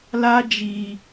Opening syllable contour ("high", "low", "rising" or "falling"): high